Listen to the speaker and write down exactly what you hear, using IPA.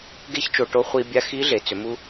ɡ e˥ ç t͡ʃ o˧ ʈ o˧˥ χʷ i˧ bʲ a˧˥ x i˧˥ ɮ e˩˧ t͡s ʏ˩˧ m u˧

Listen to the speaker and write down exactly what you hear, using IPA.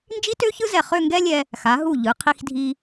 n d͡ʒ i˥ t ø˥ ç ɯ˥ z ɛ˧˩ χ ø˥˧ ŋ ɡ ɛ˥ lʲ ɛ˧ | x a˩˧ ɦ u˧˩ ʎ ɯ˩˧ qʰ i˧ x dʱ i˧

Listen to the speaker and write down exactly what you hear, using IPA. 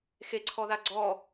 x e ǀʰ ɔ ð a ɡ͡ǀ ɔ

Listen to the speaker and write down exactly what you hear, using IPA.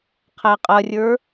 qʰ æ qʼ ɐ rʲ ə˞

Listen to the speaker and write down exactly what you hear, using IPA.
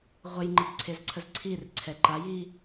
ʁʷ ə j ŋ͡ǃ ə d ǀʰ e z ǀʰ ə z ǀʰ i r ǀʰ ɛ ǃ a j i

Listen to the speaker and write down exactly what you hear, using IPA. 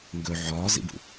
ŋ ɡ ɵ ʕ ɒː z ḭ b ṵ

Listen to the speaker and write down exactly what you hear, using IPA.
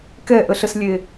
k ɛ ʔ ə ɬ ə s lʲ e

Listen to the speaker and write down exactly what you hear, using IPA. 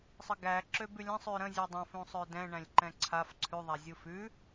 sˤ ə ɡ æ ǁ ø b ʉ lʲ ə̃ sˤ ʉ ɾ ə̃ zʲ ʉ dˤ ə̃ f ũ sˤ ø d ɛ̃ ɳ æ̃ lʲ ǃ ɛ̃ ǀʰ a f ǀʰ ʉ ðˤ a zʲ u f ʉ

